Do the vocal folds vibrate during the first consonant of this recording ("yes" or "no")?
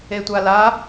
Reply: no